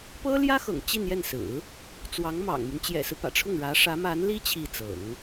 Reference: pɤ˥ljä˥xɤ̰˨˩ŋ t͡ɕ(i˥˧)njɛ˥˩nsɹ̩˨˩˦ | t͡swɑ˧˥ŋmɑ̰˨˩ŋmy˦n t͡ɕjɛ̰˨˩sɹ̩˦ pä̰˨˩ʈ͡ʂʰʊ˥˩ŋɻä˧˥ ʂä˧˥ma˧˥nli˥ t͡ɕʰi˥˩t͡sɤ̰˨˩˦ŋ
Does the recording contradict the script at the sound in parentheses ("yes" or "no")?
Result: no